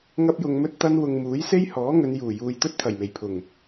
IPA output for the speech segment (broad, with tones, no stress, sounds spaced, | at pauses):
ŋ ɐ˥ p̚ j ʊ˧ ŋ m ɵ˥ t̚ t̪ ɐ˥ n w ʊ˧ ŋ m uː˨˥ j s e˥ j h ɔː˨˥ ŋ ɵ˨˧ n j uː˨˩ j uː˨ j t̪ ɵ˥ t̚ t̪ʰ ɐ˨˩ j m e˨˩ j pʰ ʊ˨˩ ŋ